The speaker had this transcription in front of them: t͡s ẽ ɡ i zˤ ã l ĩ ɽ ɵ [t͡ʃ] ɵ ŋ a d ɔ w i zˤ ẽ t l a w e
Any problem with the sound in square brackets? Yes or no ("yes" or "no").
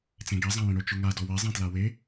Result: no